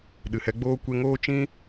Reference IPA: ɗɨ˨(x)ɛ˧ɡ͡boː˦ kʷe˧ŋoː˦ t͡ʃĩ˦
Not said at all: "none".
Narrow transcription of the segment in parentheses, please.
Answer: h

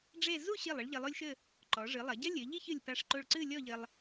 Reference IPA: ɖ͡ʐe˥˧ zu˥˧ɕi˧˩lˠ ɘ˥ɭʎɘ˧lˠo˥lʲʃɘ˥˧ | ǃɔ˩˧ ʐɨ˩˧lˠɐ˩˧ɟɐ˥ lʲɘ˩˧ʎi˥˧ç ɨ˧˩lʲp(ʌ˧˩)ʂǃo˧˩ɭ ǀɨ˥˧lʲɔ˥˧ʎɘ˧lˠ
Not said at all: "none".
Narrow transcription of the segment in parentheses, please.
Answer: a˧˩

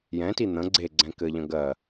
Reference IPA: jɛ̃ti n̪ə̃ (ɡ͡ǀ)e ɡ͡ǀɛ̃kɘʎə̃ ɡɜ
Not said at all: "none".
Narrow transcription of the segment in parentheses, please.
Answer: ɡ͡ǀ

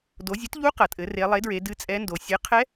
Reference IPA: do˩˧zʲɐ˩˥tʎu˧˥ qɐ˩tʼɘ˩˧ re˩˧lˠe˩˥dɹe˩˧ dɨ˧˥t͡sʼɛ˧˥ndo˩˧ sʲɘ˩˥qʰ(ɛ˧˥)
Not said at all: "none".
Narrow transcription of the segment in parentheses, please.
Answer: ɛ˧˥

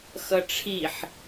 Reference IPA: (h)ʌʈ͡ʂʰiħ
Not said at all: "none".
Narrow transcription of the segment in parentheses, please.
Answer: x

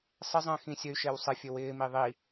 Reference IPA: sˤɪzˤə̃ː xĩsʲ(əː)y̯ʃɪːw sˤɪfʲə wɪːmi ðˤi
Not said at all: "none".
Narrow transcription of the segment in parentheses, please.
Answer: ə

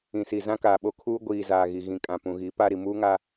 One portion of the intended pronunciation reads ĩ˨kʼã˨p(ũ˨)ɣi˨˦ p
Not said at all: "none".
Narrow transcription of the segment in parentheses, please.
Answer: ũ˨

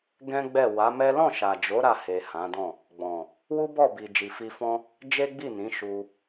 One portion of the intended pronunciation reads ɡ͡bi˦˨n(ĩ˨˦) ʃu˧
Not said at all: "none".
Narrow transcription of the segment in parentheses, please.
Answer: ĩ˨˦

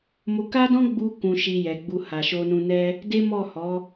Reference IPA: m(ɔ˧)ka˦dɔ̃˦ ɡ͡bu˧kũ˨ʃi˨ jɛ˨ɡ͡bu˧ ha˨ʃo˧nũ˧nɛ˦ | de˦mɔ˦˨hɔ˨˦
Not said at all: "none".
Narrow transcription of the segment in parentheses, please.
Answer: o˧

